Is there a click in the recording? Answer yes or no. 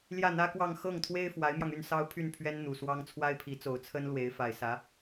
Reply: no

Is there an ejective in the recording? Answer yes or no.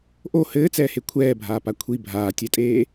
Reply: yes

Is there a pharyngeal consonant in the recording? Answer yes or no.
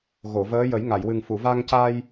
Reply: no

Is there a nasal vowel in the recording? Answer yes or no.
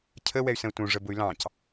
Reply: yes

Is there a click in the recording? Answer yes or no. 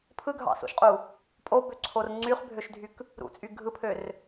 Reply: yes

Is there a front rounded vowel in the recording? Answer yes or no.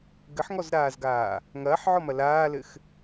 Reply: no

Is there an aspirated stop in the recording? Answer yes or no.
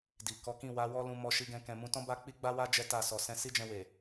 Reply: no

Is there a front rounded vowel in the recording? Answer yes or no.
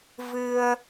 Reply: no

